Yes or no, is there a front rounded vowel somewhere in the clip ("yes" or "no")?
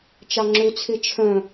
yes